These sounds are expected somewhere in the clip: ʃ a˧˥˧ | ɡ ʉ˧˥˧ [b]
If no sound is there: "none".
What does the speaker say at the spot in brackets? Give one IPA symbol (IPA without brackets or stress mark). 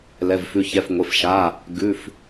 f